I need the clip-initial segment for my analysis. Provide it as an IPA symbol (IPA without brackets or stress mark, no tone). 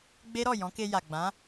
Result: ɡ͡b